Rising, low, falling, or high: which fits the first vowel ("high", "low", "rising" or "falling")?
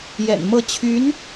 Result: low